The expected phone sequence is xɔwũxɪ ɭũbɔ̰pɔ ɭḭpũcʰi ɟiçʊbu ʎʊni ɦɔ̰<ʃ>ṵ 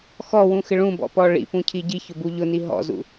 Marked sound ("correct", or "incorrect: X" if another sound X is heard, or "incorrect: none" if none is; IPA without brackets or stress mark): incorrect: z